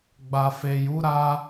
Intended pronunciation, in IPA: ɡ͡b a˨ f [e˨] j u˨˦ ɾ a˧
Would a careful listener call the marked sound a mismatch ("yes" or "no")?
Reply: no